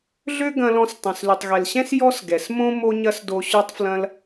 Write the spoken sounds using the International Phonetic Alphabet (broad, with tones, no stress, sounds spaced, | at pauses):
ɮ ø˥ ɡ ɐ̃˧ l ɔ̃˧ s tˤ ɐ̃˩ s l y˩ tˤ ɣ ɛ˩ l ɕ ɛ̃˥ s j ɔ˥ s ɡ ɛ˩ s m õ˥ m o˥ ɲ ɐ˥ s d o˧ ɕ ø˥ tˤ f l ɐ̃˥ l